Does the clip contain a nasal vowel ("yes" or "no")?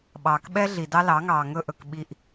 no